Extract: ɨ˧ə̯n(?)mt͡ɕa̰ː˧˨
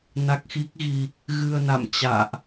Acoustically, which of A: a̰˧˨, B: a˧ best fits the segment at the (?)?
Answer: A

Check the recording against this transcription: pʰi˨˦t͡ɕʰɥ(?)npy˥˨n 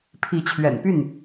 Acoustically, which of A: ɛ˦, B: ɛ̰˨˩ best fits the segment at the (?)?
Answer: B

